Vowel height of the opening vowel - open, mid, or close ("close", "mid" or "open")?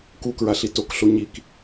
close